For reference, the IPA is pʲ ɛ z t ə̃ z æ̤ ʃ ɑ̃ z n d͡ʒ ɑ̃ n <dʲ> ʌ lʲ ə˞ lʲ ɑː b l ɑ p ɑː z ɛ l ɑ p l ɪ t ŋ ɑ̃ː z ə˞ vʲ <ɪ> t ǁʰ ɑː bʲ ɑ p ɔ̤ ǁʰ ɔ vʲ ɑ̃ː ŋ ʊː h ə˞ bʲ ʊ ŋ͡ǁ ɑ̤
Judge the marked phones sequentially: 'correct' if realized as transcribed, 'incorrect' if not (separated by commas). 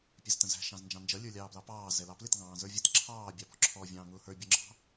incorrect, incorrect